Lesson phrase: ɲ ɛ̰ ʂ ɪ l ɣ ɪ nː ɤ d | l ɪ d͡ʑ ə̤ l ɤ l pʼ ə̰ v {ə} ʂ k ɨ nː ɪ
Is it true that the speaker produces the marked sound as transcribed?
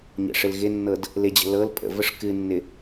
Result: yes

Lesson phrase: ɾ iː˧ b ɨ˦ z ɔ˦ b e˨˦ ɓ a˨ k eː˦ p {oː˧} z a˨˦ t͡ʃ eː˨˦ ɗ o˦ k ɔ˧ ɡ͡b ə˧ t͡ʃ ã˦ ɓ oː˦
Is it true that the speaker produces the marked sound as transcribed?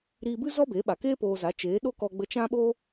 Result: yes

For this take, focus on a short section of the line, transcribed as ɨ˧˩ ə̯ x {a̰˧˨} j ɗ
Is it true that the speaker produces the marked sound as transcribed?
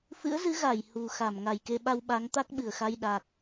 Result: no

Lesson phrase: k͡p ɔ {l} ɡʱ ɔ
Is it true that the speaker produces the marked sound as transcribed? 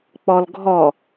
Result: yes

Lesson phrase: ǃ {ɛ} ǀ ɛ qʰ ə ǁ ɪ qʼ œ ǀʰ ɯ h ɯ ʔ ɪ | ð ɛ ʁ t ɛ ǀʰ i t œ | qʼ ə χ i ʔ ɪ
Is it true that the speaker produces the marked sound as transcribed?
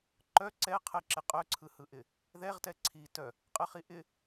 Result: no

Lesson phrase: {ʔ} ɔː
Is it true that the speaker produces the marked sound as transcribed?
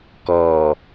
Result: no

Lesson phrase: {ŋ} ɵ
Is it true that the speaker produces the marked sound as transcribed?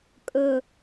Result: no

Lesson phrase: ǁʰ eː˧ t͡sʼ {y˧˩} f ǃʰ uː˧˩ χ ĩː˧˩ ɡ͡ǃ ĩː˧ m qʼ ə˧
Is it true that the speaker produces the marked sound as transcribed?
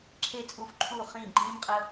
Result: no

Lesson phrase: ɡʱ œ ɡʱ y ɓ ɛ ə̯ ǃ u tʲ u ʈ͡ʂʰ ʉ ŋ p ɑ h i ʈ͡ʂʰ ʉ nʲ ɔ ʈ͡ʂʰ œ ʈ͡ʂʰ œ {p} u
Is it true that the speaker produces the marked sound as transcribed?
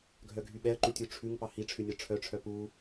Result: yes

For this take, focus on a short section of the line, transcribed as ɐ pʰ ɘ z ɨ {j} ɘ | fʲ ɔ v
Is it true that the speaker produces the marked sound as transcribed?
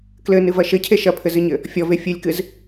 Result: no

